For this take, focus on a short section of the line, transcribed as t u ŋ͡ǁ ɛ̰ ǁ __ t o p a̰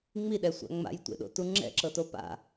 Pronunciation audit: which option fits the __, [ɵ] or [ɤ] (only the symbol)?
ɤ